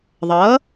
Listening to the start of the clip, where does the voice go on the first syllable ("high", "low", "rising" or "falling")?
rising